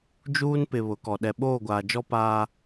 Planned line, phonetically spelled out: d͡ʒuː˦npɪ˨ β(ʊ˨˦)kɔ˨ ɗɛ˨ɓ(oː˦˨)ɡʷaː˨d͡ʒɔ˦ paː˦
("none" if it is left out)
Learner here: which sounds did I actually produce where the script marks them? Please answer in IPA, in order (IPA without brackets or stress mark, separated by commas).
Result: ʊ˨˦, oː˦˨